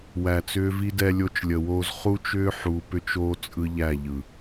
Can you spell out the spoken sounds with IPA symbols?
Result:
w æ˨ t͡s ʏː˦ v i˦ d ɛ˦ lʲ o˦ t͡ʃ lʲ ə˨ w oː˦ z χ u˦ t͡ʃ ʏː˦ ħ u˨ p ʏ˦ t͡ʃ oː˦ t͡sʼ ɯ˦ ʎ æ˦˨ ʎ ɯ˨

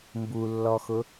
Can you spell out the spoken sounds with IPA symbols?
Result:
m b u lː ɔ x ʊ

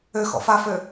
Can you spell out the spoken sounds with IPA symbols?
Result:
ø x ɔ̰ f a f ø

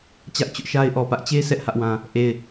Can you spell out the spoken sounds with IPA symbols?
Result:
t͡ɕ ä˦ ʔ t͡ɕ ʊ˦ ʔ ʃ a˦ ɪ̯ ʔ ɔ˨ p ä˦ ʔ t͡ɕ e˦ sʰ ɛ˦ ʔ h ä˦ ʔ w ã˦ | ʔ e˦˨ ɪ̯

